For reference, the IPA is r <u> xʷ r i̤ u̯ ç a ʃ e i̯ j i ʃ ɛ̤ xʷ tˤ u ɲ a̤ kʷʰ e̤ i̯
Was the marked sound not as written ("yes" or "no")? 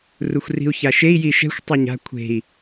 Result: no